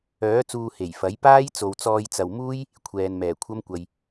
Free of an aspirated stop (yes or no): no